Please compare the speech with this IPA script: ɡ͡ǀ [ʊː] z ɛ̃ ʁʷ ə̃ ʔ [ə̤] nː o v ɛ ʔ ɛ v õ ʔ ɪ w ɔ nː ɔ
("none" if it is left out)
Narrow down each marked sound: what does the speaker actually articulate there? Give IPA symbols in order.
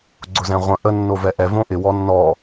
ʊ, ə

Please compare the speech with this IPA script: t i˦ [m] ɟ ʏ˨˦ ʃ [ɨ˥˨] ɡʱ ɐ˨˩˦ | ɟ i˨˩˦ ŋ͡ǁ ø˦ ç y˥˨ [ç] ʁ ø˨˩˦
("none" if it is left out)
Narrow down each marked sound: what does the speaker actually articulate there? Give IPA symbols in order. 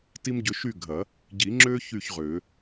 m, y˥˨, ç

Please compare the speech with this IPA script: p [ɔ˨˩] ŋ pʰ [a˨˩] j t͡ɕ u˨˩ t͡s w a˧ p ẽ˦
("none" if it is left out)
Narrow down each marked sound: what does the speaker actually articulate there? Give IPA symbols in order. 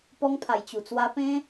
ɔ˧, a˨˩

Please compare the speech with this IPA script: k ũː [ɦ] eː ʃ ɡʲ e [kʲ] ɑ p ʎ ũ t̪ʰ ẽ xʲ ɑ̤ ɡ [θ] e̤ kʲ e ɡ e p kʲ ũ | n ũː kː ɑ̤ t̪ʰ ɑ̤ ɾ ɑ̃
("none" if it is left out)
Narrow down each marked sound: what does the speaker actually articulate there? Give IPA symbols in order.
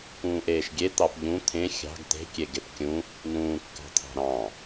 ʔ, t̪, t̪

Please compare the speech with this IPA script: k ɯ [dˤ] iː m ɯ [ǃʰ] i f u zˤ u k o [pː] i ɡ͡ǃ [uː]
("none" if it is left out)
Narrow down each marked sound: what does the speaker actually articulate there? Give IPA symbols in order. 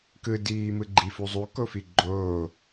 d, ɡ͡ǃ, f, oː

